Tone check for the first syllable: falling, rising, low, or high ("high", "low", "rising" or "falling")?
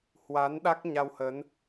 rising